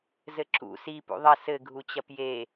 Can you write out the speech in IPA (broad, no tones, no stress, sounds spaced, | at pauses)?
z ɘ ǁ ṵ s i p ṵ ðˤ ɐ s ɘ ɡʱ u t͡ɕ ɐ p j e